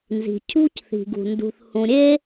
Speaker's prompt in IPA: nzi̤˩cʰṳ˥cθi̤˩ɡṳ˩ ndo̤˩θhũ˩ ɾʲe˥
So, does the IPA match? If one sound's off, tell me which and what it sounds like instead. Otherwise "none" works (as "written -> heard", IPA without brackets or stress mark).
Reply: o̤˩ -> ṳ˩